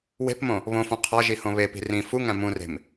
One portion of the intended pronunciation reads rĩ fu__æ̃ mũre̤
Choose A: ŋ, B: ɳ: A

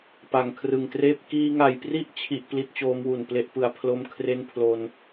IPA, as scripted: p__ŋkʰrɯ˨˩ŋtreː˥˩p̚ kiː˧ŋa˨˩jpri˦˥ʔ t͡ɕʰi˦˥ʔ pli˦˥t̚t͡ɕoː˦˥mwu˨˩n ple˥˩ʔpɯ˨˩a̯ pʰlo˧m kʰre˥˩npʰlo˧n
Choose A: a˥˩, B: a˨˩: B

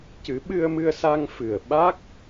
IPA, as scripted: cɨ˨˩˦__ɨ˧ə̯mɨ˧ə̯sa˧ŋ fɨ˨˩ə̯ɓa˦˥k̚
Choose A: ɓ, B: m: A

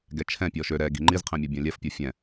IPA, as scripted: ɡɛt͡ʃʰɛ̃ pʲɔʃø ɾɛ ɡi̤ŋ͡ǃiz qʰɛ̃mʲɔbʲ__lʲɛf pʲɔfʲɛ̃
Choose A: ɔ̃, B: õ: A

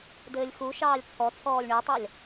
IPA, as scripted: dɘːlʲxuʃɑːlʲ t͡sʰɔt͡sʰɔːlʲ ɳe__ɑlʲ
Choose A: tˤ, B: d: A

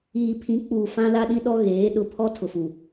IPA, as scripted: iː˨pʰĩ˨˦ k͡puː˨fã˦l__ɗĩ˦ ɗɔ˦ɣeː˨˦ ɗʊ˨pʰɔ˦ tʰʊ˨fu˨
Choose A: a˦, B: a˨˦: A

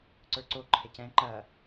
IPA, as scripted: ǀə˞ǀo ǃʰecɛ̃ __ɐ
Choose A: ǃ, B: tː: A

